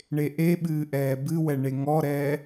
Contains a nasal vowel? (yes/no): no